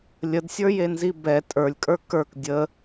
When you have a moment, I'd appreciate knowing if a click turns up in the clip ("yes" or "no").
no